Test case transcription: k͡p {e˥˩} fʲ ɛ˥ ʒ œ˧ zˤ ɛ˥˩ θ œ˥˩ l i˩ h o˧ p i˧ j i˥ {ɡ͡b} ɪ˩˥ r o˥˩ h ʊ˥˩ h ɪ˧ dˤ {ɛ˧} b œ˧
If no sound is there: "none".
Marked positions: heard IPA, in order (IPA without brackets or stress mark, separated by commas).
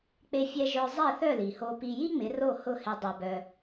e˥, ŋ͡m, e˧